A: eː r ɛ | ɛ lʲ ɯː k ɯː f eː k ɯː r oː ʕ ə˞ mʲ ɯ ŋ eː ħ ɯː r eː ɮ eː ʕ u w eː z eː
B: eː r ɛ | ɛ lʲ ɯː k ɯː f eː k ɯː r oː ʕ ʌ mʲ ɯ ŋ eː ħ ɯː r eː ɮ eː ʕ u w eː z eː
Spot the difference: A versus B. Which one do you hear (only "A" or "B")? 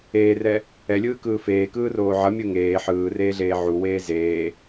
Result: B